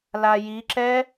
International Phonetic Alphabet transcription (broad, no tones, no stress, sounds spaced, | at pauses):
l a j i ǁ ɛ